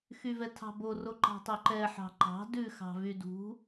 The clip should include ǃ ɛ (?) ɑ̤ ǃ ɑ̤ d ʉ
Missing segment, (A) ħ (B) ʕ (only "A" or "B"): A